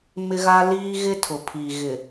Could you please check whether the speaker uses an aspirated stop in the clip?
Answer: yes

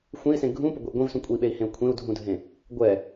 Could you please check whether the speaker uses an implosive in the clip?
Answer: yes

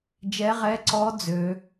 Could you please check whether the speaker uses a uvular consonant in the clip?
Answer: yes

